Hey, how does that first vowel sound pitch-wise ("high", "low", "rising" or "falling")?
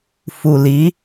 low